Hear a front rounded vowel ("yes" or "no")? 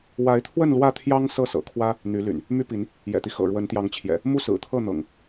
yes